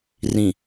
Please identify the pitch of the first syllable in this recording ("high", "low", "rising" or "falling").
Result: low